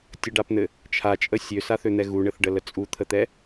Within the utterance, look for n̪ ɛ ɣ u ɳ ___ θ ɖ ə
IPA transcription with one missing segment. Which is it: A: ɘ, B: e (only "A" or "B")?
A